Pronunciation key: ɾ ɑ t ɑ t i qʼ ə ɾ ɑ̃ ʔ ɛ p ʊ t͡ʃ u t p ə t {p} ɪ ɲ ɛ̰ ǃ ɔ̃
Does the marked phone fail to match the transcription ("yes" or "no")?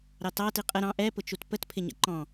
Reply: yes